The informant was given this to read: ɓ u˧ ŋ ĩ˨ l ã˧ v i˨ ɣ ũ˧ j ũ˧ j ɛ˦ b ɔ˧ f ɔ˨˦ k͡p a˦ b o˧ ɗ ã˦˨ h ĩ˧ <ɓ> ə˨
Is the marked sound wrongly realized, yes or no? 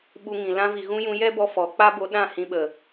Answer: no